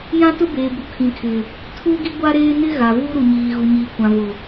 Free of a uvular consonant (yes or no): yes